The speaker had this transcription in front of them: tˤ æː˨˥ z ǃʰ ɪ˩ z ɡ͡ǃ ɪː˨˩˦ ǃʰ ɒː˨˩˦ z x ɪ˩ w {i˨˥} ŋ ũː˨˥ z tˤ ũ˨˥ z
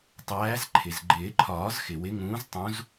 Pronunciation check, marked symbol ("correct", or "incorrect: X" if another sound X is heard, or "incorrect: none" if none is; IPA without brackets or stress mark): incorrect: ɪ˨˥